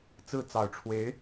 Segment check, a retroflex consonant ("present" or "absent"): present